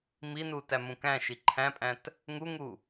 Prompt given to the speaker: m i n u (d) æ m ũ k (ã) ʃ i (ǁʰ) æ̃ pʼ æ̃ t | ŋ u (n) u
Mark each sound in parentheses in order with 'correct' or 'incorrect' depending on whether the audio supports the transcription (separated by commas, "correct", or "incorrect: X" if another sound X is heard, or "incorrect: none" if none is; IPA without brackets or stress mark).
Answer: incorrect: t, incorrect: æ̃, incorrect: ǃʰ, incorrect: ŋ